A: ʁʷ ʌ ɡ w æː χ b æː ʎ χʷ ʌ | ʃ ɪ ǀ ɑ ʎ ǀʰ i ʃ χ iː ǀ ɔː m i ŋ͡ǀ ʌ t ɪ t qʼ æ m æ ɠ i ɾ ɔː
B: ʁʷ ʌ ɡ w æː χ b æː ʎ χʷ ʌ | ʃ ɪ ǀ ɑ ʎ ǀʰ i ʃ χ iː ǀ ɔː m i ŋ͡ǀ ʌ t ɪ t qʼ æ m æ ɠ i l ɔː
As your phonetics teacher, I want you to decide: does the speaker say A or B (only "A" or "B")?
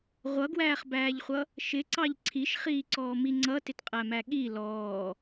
B